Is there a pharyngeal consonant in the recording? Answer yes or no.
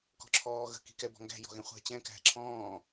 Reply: no